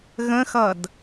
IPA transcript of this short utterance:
ɣ ə̃ x ʌ d

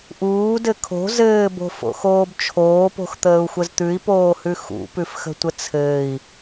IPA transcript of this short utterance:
ʔ uː d ɘ kʰ o̤ z ɘː b o̤ f o̰ x oː b t͡ʃʰ oː p o̤ x t̪ əː u̯ xʷ ə z t̪ ʉ i̯ p oː h ʉ x ṵ p ʉ f x ə̤ tʷ ə t͡sʰ ɘː i̯

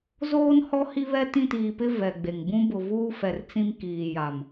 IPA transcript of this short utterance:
z oː˦ n h ɔ˦ h i˦ β ɛ˦ t ĩ˦˨ t iː˨ p ɪ˦ v ɛ˨ ɡ͡b e˨ ŋ b ũ˦ b ʊ˨ v uː˦ f ɛ˨ r t͡s ĩ˦ m k iː˨ j a˨ m

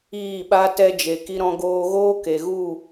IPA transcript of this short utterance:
iː˦˨ ɓ a˦ t ɛ˧ d͡ʒ e˨ k i˧ ɾ ɔ̃˧ ɡ oː˧ ɣ oː˦ k e˨ ɣ u˦˨

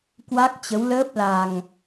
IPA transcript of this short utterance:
k w a˦˥ k̚ t͡ɕ ə˨˦ w l əː˦˥ p̚ l a˨˩ ŋ

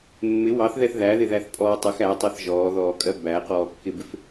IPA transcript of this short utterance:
mː ɪ w ɑ θ ð ɛ θ ð æ ð ɪ ð æ θ pʼ ɔː tˤ ə x æ tˤ ɜ θ ʒ ɔː ð ɔː kʼ ɜ b æ q ɔː kː ɪ b ɪ f

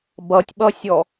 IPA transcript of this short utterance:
b ʌ tʲ ɓ ʌ sʲ ɔ

